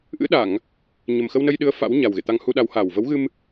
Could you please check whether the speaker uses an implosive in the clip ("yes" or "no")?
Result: yes